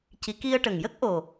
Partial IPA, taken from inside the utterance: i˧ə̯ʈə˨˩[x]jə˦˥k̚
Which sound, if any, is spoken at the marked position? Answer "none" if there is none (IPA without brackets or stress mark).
ŋ